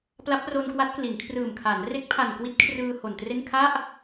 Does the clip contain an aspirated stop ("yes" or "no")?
yes